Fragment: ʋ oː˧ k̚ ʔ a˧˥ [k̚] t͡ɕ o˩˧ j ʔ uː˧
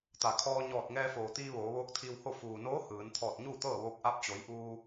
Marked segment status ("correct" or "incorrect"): incorrect